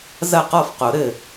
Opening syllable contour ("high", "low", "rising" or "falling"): falling